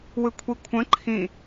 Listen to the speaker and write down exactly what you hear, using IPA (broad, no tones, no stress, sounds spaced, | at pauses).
w ɯ kʷʰ i kʷʰ ə̃ ǃʰ ĩ